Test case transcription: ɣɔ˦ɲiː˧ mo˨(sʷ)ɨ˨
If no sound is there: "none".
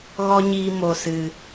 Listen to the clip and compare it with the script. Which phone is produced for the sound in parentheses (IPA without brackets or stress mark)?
s